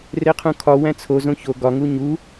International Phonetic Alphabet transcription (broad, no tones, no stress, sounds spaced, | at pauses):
r e qʰ ũ kʰ ɒ w æ̃ t͡sʰ o z õ ç o ɡ ɒ ŋ u ɲ u